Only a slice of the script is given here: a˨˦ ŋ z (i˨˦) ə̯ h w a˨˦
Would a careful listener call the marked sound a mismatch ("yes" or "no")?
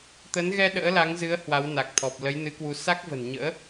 yes